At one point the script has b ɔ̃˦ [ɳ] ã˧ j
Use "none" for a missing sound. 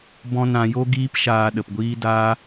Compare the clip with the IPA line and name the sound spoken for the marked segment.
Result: n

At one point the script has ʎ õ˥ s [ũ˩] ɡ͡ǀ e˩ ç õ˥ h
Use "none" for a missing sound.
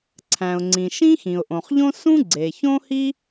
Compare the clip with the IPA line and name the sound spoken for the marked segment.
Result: ũ˥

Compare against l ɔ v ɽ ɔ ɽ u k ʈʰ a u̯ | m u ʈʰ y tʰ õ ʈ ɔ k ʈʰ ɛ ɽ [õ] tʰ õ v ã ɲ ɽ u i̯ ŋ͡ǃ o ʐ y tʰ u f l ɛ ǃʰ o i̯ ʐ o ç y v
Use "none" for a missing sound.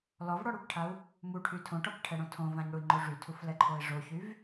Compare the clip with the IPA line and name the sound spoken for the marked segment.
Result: õ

